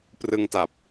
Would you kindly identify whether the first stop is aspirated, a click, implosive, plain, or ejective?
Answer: plain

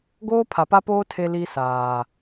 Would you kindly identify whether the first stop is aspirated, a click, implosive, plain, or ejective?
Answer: plain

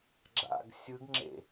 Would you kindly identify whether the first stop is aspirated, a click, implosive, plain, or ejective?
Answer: click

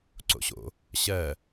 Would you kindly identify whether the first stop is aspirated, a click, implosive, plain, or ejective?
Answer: click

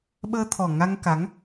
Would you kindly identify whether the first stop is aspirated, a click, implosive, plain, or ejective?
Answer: implosive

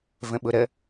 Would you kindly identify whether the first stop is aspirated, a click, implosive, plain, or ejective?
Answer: implosive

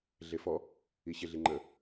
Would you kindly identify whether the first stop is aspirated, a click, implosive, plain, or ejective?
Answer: click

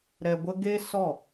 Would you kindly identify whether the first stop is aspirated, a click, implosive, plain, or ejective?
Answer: plain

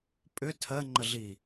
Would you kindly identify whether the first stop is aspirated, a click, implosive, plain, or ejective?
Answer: ejective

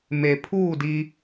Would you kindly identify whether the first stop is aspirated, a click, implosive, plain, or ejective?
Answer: aspirated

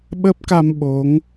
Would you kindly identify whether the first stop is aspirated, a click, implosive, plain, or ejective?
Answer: implosive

